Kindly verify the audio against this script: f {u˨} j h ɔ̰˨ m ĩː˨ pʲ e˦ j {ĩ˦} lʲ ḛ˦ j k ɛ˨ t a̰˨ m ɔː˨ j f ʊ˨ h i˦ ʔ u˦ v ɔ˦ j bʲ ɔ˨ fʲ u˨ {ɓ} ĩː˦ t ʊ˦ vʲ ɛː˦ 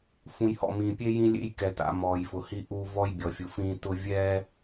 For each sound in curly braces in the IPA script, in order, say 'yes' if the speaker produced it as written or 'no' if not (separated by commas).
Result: no, yes, no